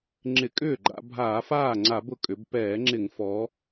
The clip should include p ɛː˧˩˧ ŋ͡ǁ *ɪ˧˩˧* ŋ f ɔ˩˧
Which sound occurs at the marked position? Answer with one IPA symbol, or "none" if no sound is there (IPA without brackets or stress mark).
ɪ˧˩˧